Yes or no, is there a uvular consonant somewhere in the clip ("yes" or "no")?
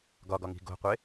yes